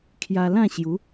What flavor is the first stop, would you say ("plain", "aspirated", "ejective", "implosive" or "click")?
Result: aspirated